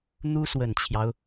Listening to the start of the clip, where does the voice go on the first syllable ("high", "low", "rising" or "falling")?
high